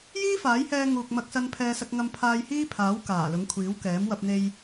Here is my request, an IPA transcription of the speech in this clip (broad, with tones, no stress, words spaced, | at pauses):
jiː˥faː˨˥jhɛː˧ ŋuː˨k̚mɐ˧k̚sɐ˧n pʰɛː˧sɐ˧k̚ŋɐ˧m pʰaː˧jhiː˥pʰaː˨˥w kaː˨˩lʊ˨˥ŋkʷʰiː˨˥wkɛː˨˥m wɐ˧p̚n̪e˧j